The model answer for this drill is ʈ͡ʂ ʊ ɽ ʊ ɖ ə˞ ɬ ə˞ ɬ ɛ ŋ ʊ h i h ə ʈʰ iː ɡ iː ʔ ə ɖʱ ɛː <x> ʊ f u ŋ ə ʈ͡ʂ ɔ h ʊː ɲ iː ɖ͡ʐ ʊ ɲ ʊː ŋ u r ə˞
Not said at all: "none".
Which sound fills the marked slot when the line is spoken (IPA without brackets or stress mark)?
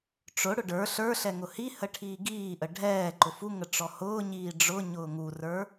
ǃ